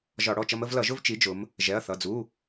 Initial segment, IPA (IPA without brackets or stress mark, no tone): ʒ